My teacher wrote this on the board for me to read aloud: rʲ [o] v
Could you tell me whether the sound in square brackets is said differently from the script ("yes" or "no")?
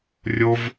no